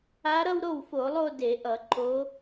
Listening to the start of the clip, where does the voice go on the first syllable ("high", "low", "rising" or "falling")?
rising